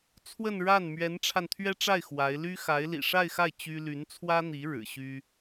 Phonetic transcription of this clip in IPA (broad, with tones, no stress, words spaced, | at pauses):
t͡sʰwə˥˧nɻa˥˩n mɥɛ˧˥nʈ͡ʂʰa˧nt̪ʰɥɛ˥ʈ͡ʂa˥˩ɪ̯ xwa˧˥ɪ̯ ly˥xa˧˥ɪ̯lḭ˨˩ ʂa˥˧ɪ̯xa˥˩ɪ̯ t͡ɕy˥ ly˧˥nt͡sʰwä˥n̪i˧˥ ɻɻ̩˨˩ɕy˥